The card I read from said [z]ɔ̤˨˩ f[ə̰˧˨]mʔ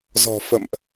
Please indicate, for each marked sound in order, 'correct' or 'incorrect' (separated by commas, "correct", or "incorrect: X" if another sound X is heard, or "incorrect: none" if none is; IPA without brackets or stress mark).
correct, correct